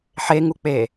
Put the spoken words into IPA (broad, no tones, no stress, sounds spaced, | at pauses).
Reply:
ħ e ŋ u k͡p e